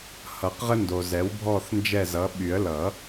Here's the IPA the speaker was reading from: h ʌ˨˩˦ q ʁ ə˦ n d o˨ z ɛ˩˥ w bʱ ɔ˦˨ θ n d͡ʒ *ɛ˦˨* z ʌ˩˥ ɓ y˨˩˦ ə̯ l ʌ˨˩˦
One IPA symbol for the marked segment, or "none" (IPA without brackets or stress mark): ɛ˦˨